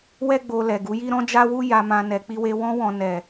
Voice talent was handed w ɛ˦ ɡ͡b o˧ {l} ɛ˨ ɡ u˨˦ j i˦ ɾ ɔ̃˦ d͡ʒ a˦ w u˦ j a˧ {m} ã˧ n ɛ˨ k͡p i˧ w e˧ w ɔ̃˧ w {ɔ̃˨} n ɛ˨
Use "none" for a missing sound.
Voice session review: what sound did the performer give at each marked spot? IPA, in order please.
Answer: l, m, ɔ̃˨

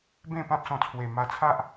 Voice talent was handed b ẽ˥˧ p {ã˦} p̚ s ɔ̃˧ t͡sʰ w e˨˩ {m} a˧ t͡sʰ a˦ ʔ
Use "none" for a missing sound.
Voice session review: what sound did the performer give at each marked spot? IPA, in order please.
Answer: ã˦, m

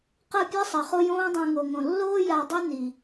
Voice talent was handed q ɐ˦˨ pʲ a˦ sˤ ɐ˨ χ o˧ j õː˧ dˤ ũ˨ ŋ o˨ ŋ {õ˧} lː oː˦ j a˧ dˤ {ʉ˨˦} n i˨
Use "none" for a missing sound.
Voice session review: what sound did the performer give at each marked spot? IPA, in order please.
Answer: õ˨, ʉ˦

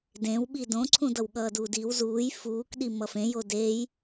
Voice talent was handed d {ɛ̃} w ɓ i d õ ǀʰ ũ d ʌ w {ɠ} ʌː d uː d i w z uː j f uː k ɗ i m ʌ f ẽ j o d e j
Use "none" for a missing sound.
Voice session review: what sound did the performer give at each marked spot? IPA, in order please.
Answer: ẽ, ɠ

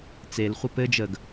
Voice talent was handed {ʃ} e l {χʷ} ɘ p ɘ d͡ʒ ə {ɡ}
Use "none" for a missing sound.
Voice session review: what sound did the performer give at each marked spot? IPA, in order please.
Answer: t͡s, χʷ, ɡ

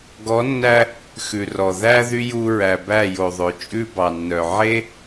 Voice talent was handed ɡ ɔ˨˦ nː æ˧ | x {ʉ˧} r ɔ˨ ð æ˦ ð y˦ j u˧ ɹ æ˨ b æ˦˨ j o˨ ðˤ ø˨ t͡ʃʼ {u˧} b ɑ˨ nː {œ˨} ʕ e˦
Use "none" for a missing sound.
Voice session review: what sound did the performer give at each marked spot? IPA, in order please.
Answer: ʉ˨, ʉ˧, œ˨

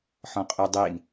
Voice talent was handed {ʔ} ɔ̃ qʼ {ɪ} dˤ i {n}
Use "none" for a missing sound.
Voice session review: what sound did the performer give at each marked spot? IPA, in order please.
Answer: ħ, y, n

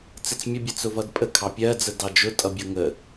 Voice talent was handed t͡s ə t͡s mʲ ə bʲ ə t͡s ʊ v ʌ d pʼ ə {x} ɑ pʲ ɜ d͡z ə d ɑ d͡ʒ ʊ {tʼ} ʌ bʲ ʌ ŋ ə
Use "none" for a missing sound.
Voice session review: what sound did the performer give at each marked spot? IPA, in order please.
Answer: kʰ, tʼ

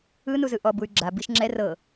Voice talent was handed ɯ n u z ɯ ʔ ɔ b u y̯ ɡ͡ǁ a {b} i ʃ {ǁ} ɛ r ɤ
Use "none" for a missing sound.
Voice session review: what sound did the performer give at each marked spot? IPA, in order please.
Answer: b, ŋ͡ǁ

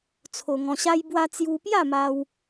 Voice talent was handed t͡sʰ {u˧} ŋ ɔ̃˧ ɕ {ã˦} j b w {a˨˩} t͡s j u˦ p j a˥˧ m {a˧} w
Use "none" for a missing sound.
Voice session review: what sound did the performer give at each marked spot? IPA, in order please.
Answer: o˧, a˦, a˦, a˧

